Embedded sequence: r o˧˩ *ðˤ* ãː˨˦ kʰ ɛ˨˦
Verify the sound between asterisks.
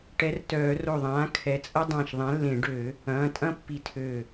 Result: correct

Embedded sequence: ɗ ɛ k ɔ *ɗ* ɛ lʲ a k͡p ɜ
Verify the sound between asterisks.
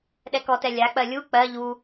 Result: incorrect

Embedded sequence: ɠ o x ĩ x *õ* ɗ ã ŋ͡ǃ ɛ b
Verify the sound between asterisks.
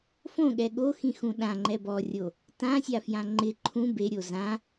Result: incorrect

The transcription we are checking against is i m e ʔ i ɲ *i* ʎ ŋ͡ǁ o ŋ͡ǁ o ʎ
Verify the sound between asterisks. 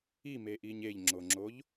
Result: incorrect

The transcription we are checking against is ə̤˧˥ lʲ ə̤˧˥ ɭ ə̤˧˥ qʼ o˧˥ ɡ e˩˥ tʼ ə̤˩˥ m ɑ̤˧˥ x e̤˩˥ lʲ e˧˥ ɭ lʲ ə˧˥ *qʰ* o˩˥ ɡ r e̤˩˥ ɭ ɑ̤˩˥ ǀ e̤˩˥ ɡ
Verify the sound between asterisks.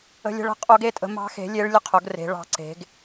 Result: correct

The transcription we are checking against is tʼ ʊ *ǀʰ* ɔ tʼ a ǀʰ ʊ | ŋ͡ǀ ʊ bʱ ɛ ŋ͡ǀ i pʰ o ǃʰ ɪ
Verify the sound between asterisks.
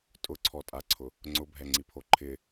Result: correct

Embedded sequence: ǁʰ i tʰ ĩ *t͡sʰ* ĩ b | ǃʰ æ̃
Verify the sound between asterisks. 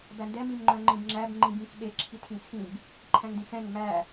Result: correct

